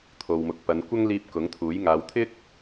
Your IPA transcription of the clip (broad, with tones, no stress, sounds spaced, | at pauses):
t̪ʰ o˨ w m ʊ˨ k̚ p ɐ˨˧ n kʷ ɐ˥ ŋ l iː˧ p̚ k ʊ˨˥ ŋ t̪ʰ uː˨˥ j ŋ aː˨˧ w t̪ʰ ɪ˥ k̚